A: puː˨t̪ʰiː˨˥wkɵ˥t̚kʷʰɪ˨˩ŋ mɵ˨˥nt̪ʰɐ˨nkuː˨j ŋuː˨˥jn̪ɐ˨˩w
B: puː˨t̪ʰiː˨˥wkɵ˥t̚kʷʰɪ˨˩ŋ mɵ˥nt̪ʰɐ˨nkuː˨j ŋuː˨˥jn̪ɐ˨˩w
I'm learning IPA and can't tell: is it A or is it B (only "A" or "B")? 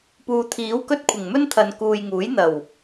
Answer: B